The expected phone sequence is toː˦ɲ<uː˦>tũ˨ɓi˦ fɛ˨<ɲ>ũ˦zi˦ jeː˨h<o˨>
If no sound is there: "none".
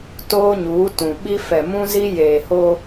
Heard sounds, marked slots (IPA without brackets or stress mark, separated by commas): uː˨˦, m, o˦